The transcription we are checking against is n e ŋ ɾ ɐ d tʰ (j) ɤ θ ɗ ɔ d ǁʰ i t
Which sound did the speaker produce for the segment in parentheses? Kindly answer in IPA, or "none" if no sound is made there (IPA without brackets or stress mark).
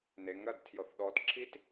j